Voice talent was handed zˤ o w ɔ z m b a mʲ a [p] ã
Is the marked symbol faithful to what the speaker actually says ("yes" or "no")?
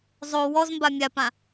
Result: yes